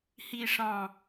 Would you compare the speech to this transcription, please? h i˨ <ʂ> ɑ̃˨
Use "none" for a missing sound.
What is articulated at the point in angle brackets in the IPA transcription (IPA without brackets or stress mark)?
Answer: ʂ